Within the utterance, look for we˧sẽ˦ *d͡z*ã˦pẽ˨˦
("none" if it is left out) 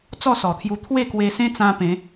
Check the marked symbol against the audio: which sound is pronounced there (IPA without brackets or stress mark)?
t͡s